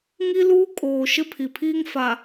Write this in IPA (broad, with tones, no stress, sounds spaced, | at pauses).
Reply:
ŋ i˦ l uː˦ kʼ oː˨ ʃ ɪ˦ pʰ i˨ pʰ iː˦ ŋ f a˨